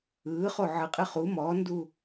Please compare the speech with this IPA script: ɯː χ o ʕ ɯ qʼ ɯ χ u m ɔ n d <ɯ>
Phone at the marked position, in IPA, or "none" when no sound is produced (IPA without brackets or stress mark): u